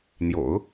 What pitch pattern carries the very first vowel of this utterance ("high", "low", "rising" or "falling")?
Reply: low